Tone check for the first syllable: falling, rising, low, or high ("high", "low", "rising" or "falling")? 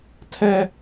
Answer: high